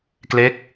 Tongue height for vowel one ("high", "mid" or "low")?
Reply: mid